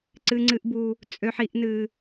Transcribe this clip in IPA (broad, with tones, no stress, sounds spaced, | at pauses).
ǀ ɨ˦ ŋ͡ǀ ɨ˦ ʔ b u˦ | t͡sʼ ø˦ ħ i˦ ʔ n ɨ˦